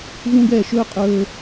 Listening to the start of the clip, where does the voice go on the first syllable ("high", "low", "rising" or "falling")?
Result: high